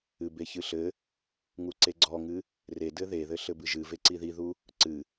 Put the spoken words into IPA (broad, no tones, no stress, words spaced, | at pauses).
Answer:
ɨbeçɨɬɘ | ŋuǀeɡ͡ǀɔŋɨ | redɘ ðeðɘ ɬɘbɨʒɨ veǀiðiðu | ǀɨ